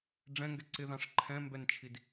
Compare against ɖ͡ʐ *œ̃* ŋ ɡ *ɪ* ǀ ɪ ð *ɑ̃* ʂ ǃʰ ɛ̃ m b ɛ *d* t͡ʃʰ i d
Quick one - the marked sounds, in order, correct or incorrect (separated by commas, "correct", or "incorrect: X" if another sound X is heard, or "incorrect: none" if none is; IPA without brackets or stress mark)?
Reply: incorrect: ɛ̃, incorrect: ɛ, correct, incorrect: n